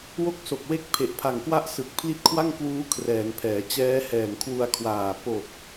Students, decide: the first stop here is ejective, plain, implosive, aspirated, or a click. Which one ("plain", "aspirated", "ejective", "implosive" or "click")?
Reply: plain